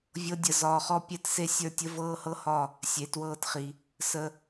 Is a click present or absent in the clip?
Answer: absent